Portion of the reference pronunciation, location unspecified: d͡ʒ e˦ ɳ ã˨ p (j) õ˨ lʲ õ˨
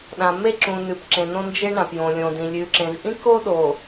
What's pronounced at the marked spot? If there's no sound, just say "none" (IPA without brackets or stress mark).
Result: j